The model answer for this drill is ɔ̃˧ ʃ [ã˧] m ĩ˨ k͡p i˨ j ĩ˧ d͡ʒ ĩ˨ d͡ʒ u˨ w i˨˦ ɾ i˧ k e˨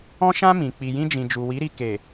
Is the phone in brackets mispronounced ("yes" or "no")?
no